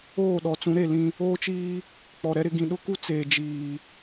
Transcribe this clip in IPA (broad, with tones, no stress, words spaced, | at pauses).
oː˦˨ɗɔ˨t͡sũ˨˦ ɾe˦˨lĩ˦ | oː˦t͡ʃiː˦ | k͡pɔ˨ɾɛ˦ɾɪ˦ ɡĩ˨ɗʊ˦ku˦ t͡seː˨d͡ʒiː˨